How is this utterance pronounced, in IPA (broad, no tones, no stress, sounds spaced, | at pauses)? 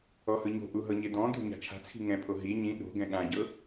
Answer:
ɔ h ɯ ɲ o̤ ʔ u ɦ ɤ ɲ e d̪ ɔ̃ d̪ o̤ ɲ a̤ t͡ʃʰ a̤ t͡sʰ i̤ ŋ ɛ̃ pʰ o ɦ i ɲ ĩ ɗ o̤ ɡ ɛ̃ ɠ ã ɟ ɤ